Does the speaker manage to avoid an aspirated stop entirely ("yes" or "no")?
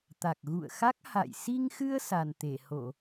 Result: yes